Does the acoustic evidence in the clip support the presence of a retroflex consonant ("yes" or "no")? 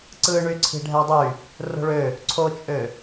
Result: yes